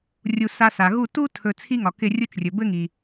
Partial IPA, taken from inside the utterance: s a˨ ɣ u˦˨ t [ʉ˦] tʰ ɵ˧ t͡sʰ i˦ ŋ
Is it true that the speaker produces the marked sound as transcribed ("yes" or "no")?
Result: no